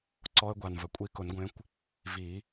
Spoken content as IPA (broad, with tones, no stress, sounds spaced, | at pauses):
ǀ ɔ˦˥ ə̯ ɡʷ a˨ n v ə˨ kʷʼ i˦˥ k ʊ˨˩˦ n ɡʷ ẽ˨˦ kʷ | v i˨˩˦